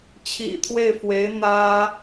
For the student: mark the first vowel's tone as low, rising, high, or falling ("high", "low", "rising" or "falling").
low